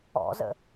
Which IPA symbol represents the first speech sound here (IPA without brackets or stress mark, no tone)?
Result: ɔ̰